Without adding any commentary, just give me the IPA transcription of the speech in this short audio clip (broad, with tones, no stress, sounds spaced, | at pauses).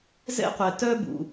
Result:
z ɛ̰˥ qʷ ɛ˩ t œ˥ b ṵ˩